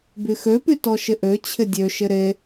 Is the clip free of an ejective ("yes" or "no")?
yes